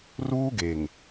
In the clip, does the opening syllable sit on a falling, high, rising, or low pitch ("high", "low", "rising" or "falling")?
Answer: high